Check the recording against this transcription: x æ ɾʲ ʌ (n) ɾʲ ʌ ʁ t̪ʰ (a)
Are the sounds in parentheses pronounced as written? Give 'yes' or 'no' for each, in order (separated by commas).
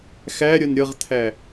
yes, no